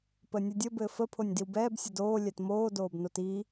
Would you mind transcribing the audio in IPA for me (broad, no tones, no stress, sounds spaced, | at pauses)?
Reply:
p ə nʲ ə dʲ ə b ɘː f ə pʰ o nʲ d i w b ɛː b sʲ ɘ d oː lʲ ɛ t m oː d oː b n o t i